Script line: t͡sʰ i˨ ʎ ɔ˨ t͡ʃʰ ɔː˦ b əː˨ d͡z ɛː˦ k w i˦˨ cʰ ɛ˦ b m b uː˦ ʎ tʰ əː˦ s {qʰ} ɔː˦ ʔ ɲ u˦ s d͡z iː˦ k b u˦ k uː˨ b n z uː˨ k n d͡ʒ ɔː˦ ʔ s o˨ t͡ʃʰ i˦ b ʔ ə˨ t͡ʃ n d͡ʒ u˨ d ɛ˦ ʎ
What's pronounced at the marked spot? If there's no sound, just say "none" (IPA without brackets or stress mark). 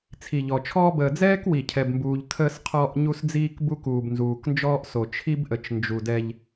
qʰ